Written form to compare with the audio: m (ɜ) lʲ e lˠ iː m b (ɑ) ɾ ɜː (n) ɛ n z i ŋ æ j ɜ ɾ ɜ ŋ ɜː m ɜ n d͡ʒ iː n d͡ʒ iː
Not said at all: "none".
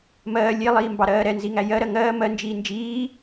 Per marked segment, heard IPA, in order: ɜː, ɑ, ɾ

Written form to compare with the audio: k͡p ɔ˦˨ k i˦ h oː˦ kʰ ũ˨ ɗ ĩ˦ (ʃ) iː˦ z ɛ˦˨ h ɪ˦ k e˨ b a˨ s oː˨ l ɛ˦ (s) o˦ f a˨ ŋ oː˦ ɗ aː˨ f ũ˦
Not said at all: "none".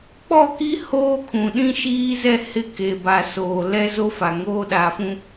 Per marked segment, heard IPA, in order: ʃ, z

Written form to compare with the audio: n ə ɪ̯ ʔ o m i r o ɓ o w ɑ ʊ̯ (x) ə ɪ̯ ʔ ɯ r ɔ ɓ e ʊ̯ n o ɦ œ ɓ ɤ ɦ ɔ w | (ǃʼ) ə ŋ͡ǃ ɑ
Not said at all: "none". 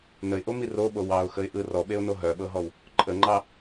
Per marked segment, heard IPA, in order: x, ǃʼ

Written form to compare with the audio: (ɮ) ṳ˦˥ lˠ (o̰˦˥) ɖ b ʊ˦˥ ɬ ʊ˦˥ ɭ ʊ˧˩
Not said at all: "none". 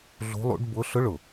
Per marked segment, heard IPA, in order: ɮ, ṵ˦˥

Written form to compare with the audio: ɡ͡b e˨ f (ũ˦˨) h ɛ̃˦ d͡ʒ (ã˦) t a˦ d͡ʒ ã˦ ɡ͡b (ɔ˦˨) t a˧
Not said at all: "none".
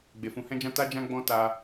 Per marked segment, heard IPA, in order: ũ˨˦, ã˦, ɔ̃˦˨

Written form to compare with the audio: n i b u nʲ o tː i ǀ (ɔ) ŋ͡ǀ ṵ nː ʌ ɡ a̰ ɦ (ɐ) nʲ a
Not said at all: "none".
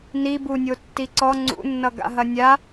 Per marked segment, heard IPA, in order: ɔ, ɐ

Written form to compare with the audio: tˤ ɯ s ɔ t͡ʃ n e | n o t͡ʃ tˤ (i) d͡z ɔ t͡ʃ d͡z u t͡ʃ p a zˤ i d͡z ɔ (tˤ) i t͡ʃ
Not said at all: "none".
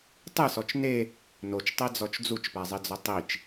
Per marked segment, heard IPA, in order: e, tˤ

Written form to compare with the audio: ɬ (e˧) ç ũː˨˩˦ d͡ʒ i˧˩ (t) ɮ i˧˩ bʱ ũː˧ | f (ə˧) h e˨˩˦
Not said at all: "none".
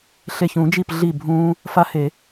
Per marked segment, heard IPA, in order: e˧˩, p, a˧

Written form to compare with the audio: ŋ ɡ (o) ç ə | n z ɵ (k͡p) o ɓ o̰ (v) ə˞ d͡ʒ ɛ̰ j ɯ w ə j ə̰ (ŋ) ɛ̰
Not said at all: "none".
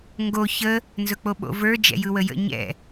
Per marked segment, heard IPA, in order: o, k͡p, v, ɲ

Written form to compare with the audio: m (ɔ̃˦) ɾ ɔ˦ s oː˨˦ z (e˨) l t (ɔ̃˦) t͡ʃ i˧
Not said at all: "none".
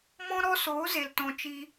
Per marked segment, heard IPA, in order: ɔ̃˦, e˨, ɔ̃˧

